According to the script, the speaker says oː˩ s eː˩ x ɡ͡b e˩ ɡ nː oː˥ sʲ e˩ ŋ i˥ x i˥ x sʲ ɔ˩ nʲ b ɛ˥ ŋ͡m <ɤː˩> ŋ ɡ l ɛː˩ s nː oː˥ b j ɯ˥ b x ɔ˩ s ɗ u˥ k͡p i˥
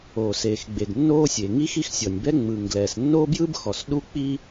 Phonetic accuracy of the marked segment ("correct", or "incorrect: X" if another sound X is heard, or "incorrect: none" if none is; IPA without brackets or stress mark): incorrect: ɯː˩